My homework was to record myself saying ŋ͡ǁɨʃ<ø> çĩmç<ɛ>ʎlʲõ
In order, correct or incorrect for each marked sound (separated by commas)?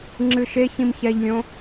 incorrect, correct